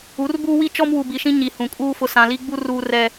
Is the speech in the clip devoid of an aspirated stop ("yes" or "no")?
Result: yes